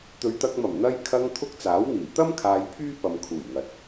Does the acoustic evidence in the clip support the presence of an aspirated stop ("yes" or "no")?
yes